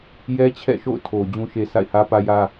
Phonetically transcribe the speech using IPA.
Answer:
jɛ˦t͡ɕʰɛ̰˦˨ʃo̰˦˨ʊ̯tʰo˨ d͡ʑũ˨ʃe˨ sʰa̰˦˨ɪ̯hä˦pä˦jä˦

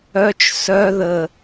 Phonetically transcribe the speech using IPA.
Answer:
œt͡ʃ sœ ðə

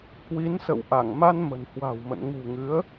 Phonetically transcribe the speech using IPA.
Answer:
kwi˨˦nsə̰˧˨wʔa˧˩ŋ ma˧n mə̤˨˩nhwa̤˨˩wmə̰˧˨n ŋṳ˨˩ŋɨ˨˦ə̯

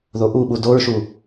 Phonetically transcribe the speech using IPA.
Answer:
ðoʔuɓu doɹʃu

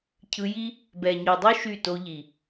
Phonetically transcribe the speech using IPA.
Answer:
cʰɯ˧ji˦ | bɛ˨ɲɔ˨dˤo˦ ʃy˦˨to˧ʎi˨

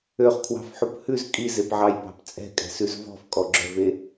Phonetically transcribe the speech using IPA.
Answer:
øχkʰwɑ̤fħup hʉz kʼizepʕɑjpɑ̤p t͡sʼɛ̤kʼɛ̤sʉz vɔ̤fkʼɔɡ͡ǁœve

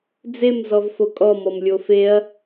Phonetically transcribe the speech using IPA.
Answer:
d͡zem zɔvfokʼɔ mɔmlʲofeɐ̯

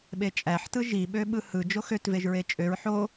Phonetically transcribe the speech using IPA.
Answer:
ɓet͡ʃʼæħtɯ ʒiɓø ɓɯhɯ d͡ʒoxøtveʒ ɹet͡ʃʼøɹ ħo

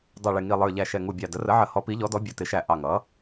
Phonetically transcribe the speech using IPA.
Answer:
dˤʌ˧˩ɭɪ˧˩ŋi˧˩lˠə˞˧˩ ʎæ˧˩ʃɛ˧˩ŋu˧˩bʲɑ˧˩ də˩˥rə˩˥ʕə˩˥ hɔ˩˥pi˩˥ʎɔ˩˥dɔ˩˥ bʲʌ˩˥tɪ˩˥ʃæ˧˩ ʔɑ˧˩ŋʌ˩˥

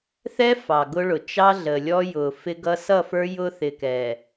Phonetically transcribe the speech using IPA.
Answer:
θɛ˦ fɑ˨ɡʊ˦ɭʊ˨ t͡ʃɑ˦ɮə˨ lʲɔ˦jʊ˨ fɪ˦ɡʌ˦ sʌ˦˨fə˞˦ jʊ˦θɪ˨kɛ˨

